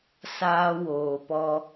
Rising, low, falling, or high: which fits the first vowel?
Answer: high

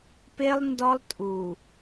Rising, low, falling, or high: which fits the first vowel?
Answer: high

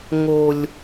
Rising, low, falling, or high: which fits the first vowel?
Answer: low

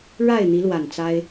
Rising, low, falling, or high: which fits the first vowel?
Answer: falling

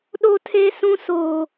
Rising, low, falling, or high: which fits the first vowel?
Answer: high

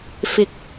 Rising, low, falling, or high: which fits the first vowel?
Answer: high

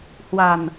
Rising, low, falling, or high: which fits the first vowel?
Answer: low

